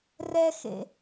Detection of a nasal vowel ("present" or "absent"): absent